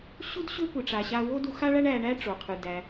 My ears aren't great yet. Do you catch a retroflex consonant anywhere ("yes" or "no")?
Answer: yes